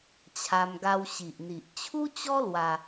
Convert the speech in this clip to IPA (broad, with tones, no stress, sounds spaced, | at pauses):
t͡ɕʰ a˧ m ɡ a˧ w ɕ i˨ ʔ n̪ i˨ ʔ t͡ɕʰ u˦ t͡ɕ ɔ˦ l w a˧